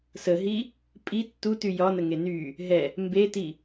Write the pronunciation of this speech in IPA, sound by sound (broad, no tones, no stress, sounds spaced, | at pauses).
s ə ɦ i | pʼ i tː u t y j ɒ n ə ŋ e n y | ɦ ɛ | m b e t i